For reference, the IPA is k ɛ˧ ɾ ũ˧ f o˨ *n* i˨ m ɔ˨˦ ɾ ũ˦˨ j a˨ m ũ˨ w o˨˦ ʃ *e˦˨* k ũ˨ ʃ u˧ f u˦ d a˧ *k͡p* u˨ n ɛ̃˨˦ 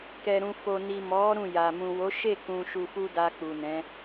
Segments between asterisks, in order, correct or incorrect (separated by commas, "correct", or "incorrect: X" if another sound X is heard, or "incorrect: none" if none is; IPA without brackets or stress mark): correct, correct, correct